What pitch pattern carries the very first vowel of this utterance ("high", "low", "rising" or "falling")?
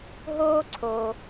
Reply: high